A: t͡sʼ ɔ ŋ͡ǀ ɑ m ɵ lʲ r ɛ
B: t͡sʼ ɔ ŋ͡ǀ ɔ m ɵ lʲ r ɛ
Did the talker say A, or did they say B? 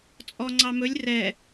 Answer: A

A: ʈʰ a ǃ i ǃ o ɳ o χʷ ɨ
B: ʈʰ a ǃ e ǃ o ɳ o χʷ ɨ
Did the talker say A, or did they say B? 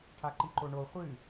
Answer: A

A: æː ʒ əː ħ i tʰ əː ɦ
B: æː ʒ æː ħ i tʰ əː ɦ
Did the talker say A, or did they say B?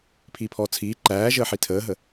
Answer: A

